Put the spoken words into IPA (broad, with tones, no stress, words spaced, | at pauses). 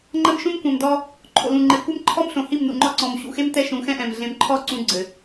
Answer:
ŋ͡ǃɐ˦mʃũ˦mkʷɛ̃˨mdɔ˦ | ǃʰo̰˨lũ˨ŋ͡ǃe˨ kʷɛ˦mǃʰɔ˦mɬõ˨ hi˦˨mnṵ˨ŋ͡ǃɔ˦ǀɔ̃˨m ɕṵ˨xe˦m tɛ˦ʃũ˨˦xɛ̃˦ʔɛ̃˨m ɮẽ˨mǃʰɔ˦˨ ǀũ˦ɡ͡ǀɘ˨